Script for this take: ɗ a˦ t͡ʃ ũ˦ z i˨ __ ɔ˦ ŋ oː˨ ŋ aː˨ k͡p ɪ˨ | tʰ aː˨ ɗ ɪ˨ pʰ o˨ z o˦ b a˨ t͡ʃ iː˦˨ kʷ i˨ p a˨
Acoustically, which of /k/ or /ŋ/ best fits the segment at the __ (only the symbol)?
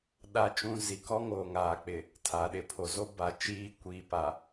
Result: k